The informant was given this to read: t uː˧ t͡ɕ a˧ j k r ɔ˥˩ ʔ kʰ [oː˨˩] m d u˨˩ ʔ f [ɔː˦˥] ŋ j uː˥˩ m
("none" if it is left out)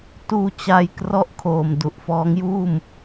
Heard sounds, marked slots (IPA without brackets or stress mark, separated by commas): oː˨˩, ɔː˦˥